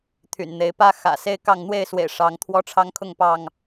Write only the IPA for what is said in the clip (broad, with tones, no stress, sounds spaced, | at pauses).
t̪ʰ y̰˨˩ n n̪ e˨˦ ɪ̯ p ä˦ x ä̰˨˩ s e˦ ɪ̯ k ɑ˥˨ ŋ n̪ w e˥˨ ɪ̯ s w ḛ˨˩ ɪ̯ ʂ ɑ˨˦ ŋ t̪ʰ w ɔ˦ ʈ͡ʂʰ ɑ˦ ŋ kʰ ʊ˥˨ ŋ p ɑ˥˨ ŋ